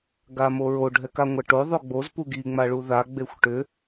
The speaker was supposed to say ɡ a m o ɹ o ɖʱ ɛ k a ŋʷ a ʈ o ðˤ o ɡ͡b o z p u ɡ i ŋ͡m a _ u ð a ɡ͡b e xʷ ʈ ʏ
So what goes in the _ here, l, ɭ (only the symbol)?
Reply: ɭ